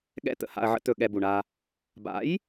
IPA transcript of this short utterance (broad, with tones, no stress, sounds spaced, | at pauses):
ɠ ɛ̰˦˨ t̪ ə̰˧ h a̰˧ ɐ̯ ʕ ə̰˦ t̪ ɵ˧ ɠ ɛ˧ b u˨ ɳ a˧ | b a̰˨˦ j